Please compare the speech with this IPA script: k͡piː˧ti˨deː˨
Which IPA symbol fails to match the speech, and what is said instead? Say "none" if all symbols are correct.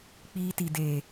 none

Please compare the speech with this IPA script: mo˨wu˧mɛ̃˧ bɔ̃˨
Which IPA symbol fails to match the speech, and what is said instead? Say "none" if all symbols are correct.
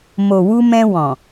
b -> w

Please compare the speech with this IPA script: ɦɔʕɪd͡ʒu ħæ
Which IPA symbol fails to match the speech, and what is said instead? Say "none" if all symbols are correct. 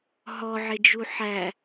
none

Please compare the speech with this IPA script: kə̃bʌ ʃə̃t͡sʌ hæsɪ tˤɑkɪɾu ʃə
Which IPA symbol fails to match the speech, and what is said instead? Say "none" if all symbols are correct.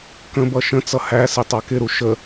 none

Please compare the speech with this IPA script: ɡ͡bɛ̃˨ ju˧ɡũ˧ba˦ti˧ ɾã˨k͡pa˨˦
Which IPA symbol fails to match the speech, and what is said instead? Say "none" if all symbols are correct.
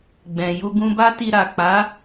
ã˨ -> a˨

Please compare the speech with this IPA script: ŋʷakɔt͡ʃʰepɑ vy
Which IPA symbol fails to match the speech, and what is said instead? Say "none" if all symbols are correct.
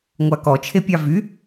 p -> pʲ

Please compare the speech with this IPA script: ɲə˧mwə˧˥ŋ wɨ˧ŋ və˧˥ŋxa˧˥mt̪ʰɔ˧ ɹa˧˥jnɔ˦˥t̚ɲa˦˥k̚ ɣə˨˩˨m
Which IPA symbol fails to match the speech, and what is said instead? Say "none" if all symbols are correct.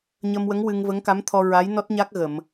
x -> k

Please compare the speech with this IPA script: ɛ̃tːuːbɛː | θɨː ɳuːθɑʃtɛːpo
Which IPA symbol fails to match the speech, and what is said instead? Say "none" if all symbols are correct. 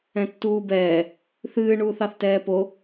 ʃ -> θ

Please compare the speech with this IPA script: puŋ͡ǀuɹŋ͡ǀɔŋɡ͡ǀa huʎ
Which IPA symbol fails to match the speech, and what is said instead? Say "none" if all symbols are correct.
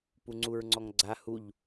none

